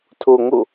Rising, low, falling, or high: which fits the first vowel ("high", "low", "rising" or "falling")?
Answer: low